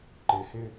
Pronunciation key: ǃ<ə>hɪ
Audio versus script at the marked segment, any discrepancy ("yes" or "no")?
yes